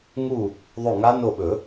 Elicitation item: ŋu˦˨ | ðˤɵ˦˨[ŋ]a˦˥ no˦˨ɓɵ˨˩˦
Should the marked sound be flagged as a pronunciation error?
no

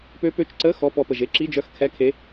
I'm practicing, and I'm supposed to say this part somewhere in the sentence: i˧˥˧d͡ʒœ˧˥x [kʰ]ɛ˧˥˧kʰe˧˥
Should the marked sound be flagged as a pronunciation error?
no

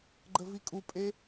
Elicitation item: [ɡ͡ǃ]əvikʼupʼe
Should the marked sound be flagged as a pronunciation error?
no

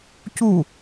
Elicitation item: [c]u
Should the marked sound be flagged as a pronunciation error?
no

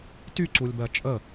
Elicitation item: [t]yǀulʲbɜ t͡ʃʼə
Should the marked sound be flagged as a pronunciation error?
no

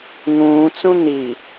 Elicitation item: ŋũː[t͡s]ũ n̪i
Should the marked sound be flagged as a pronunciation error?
no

